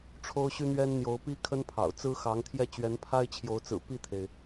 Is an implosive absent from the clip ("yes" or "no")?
yes